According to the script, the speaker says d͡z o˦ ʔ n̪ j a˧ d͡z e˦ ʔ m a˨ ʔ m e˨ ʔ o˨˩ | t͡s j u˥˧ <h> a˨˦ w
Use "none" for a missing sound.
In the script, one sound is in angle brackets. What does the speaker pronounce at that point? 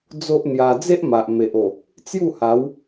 h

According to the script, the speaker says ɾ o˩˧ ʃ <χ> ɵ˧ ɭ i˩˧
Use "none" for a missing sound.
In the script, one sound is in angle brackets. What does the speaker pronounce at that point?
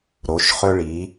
χ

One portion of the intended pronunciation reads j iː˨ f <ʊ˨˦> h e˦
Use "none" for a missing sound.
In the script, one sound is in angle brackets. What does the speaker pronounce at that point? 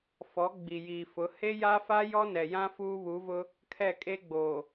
ʊ˨˦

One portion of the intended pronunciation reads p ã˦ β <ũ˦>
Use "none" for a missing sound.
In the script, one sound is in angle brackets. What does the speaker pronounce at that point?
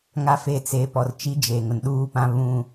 ũ˦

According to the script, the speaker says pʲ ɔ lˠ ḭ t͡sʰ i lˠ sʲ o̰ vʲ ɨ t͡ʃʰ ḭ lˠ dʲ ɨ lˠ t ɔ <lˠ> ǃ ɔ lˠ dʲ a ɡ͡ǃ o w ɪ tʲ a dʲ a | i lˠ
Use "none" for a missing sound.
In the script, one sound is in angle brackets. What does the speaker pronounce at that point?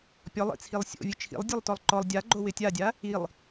lˠ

